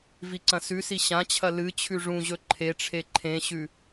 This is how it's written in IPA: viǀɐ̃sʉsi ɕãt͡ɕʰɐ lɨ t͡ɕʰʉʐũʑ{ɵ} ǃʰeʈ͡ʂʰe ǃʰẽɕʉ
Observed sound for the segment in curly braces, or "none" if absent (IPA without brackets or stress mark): ɵ